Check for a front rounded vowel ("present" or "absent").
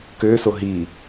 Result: present